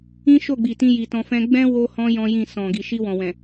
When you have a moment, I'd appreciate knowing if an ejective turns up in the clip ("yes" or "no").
no